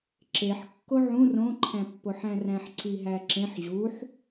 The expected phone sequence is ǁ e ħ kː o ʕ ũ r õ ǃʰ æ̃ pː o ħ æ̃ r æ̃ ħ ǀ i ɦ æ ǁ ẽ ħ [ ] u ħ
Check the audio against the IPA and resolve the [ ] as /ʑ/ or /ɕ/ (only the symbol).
ʑ